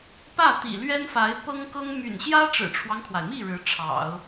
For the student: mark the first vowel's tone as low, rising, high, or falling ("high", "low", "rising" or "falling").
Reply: falling